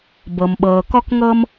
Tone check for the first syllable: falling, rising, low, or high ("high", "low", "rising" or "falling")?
low